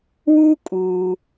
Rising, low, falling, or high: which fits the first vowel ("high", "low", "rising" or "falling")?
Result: high